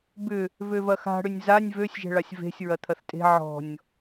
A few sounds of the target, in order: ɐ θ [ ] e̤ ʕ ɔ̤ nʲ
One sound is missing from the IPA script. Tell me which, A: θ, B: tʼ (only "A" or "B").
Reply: B